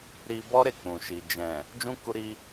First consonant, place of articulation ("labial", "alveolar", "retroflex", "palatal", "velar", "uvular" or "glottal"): alveolar